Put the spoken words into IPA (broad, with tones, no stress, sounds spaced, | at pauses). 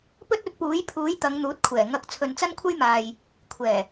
p ɵ˥ t̚ ɵ˨˥ t̚ p uː˨˥ j pʰ uː˨˥ j t̪ ɐ˨˧ ŋ n̪ uː˨˥ t̚ kʷʰ ɛː˨˩ ŋ ɐ˨˥ k̚ t͡sʰ ɵ˨ n t͡s ɐ˥ n kʷʰ ɐ˥ j m aː˨ j | kʷʰ ɛː˨˩